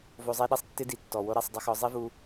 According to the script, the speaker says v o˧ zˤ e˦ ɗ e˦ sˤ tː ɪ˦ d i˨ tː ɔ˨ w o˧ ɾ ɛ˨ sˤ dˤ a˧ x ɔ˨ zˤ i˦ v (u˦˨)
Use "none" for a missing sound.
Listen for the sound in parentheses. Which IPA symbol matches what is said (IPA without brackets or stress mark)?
u˧